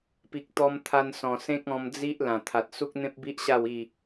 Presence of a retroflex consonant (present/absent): absent